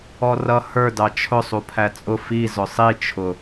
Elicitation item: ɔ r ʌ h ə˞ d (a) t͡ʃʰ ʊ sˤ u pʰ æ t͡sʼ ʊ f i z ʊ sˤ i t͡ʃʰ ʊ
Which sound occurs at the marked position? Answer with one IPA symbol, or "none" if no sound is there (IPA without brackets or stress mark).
ɑ